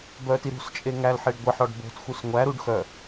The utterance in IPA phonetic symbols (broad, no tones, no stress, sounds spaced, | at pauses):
b œ t i ɾ ṳ s t͡ʃʼ e ŋ æ l ħ e ɖ ɡʷ e ħ ɔ ɖ b o̤ t x u s ŋʷ æ ɾ u ɖ x œ